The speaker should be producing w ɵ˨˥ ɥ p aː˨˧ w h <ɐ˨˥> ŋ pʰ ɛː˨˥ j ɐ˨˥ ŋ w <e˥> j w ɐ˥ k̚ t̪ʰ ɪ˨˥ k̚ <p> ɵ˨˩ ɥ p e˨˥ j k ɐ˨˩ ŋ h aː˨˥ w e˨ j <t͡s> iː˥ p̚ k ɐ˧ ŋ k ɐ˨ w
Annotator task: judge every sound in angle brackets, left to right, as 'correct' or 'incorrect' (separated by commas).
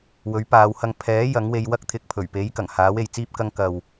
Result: incorrect, incorrect, incorrect, correct